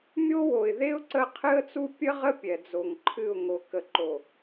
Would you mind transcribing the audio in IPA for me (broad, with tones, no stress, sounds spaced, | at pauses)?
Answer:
mʲ o˦ w o˨ ɪ̯ ð e˦ ʊ̯ ǀ ə˦˨ qʰ ɨ˦ ə̯ t͡s u˦ pʲ ə˦ ʁ ə˦ pʲ ɛ˨ d͡z o˨ ŋ ǃʰ ɨ˦˨ ʊ̯ ŋ o˨ k ə˨ ǃ o˨